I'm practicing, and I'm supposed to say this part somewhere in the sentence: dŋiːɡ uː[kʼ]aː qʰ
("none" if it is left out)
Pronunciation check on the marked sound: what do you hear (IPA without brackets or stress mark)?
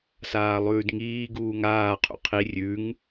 ŋ